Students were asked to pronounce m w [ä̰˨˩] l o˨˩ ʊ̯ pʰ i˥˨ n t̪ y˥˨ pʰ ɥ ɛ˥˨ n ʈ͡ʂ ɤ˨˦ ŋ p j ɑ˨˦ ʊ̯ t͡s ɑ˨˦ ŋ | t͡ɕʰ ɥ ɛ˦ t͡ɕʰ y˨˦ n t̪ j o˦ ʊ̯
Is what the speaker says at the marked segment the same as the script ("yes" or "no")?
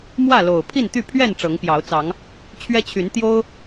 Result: no